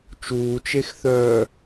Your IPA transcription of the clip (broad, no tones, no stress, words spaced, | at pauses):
t͡ʃuːt͡ʃexθœː